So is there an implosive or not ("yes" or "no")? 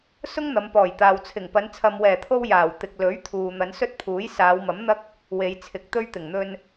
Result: no